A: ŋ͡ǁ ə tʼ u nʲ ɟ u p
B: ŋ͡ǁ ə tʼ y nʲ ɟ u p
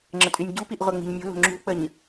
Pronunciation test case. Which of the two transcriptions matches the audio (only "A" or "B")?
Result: B